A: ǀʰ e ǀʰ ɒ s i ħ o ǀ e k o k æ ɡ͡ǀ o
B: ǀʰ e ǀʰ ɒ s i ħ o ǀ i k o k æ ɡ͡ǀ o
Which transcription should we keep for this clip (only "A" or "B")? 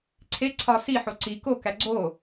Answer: B